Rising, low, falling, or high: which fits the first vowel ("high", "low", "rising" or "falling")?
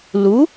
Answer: rising